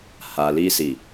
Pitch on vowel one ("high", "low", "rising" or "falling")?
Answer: low